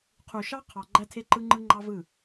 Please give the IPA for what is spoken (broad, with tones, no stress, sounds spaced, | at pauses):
qʰ u˨ ʃ ɑ˦ qʰ ɑ˨ ɡ͡ǃ æ˦ tʰ e˦ ǃ ɯ˦ ŋ͡ǃ ɯ˦ ŋ͡ǃ ɑ˦ v ɯ˦˨